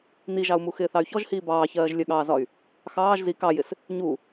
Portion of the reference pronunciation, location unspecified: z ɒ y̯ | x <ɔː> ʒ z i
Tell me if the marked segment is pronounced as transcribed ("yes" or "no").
no